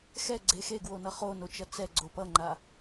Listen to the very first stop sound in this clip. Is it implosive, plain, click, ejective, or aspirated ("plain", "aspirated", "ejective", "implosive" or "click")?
click